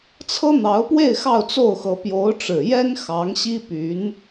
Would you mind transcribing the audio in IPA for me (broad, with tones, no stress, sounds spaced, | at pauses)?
t͡sʰ ɤ˥ n̪ ɑ˧˥ ʊ̯ p w e˥˧ ɪ̯ x ɑ˥˧ ʊ̯ t͡s o˥˩ ʊ̯ x ɤ˧˥ p j o˧˥ ʊ̯ ʈ͡ʂ ɻ̩˨˩ j ɛ˥ n x ɑ˧˥ ŋ ɕ i˥ p y˧˥ n